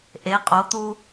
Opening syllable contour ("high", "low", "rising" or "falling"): rising